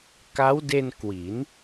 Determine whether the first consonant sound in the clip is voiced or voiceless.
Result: voiceless